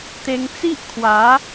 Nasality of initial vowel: oral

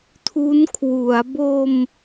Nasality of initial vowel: oral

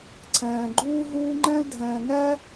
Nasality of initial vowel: nasal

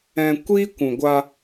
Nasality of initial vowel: nasal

